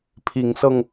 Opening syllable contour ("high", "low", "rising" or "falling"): rising